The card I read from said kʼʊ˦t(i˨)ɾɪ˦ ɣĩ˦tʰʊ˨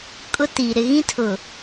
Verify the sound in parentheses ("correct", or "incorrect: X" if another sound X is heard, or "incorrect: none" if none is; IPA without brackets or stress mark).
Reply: correct